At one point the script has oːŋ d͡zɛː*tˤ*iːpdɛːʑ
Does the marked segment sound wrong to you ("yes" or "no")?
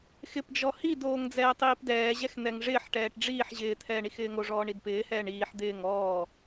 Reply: no